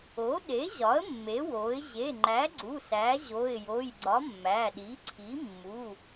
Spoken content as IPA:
o˩˥ ɗ e˩˥ ʑ ɒ˩˥ ə̯ mː e˩˥ w o˩˥ ɪ̯ ʑ e˩˧˩ ŋ͡ǃ æ˩˥ ɡ͡ǀ u˩˧˩ s æ˩˥ ʑ o˩˧˩ ɪ̯ j o˩˧˩ j ɡ͡ǀ ɒ˩˥ mː æ˩˧˩ ɗ i˩˥ ǀʰ i˩˥ mː u˩˧˩

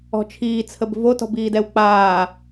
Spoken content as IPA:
ɔ̤ t͡ʃʰ iː t͡sʰ ə b v o t ɔ̤ b iː d ɛ w k͡p aː

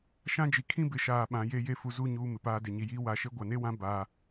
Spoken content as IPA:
ʃ ã˦ d͡ʒ i˨ kʰ ĩ˦ b ɪ˨ ʃ aː˨ ɓ ã˨˦ j e˦ j e˦ f u˨ z u˦˨ ɲ uː˦ m ɪ˨ p aː˦ d e˨ ɲ i˨ j iː˦ w a˨ ʃ e˦ ɡʷ a˨ n e˦ w ã˦ b aː˦

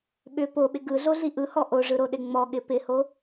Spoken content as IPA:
ɓ ʏ p o ɓ ɪ ɡ ɯ ɮ o ɮ i ʔ ɯ h ɔ ʔ o ʐ ɯ ɾ o ɗ ɪ ŋ͡m ɔ ɠ ɪ p ɪ h o

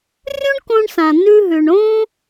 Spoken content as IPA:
rʲ ũ˥ ɳ k õ˧ ɳ s ã˩ n̪ ʉ˧ ɦ ʉ˩ ɳ õ˥

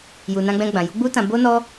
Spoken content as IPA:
j u˨ n ã˧ ɡ͡b ɛ̃˧ ɡ͡b ã˨ j u˨˦ ɡ͡b u˦ t ã˧ b o˦ n ɔ˦

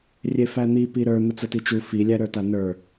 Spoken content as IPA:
rʲ e f æ n̪ i p i ɾ ə˞ n̪ ʊ t͡s ə t i t͡ʃ u f i lʲ æ ɾ ə˞ t a n ə˞

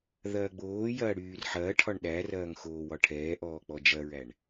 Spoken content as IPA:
ð ɐː ɡ͡b oː j ɐː ɽ yː r ħ ɐː ʈʰ ɒ ɳ ɗ æ r ɐː ŋ x oː w ɒ ʈʰ ɛː ʔ ɔː k͡p ɔ d͡ʒ ɐ ɹ æ ɳ

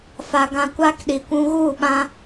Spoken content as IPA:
f a˨ ɡ ã˧ kʷ a˦ k ɗ i˨ kʷ ũ˧ ɣ u˦˨ ɓ ã˧

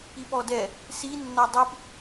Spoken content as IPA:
i p ɔ d ɛ | s i nː ɒ dˤ i p

